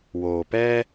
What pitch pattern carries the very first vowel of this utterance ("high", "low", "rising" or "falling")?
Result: low